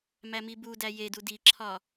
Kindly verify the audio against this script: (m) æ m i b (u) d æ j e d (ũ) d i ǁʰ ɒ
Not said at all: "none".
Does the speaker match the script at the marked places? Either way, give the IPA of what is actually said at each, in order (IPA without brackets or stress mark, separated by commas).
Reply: m, u, u